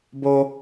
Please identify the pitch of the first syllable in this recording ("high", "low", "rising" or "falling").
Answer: high